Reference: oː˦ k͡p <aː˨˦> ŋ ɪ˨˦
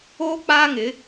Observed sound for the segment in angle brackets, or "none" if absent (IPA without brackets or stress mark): aː˦